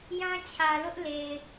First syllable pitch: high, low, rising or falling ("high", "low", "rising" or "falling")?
high